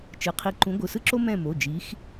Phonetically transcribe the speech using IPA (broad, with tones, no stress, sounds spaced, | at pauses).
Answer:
t͡ʃ ɯ˩˧˩ qʰ i˨˥ ǃ ũ˨˥ ɡʷ ɯ˩˧˩ s ɯ˥ ǁ o˥ m ɛ̃˦˨ m o˩˧˩ d͡ʒ i˨˥ x